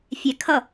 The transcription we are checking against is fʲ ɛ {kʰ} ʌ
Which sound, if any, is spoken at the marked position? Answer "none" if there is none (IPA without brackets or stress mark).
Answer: kʰ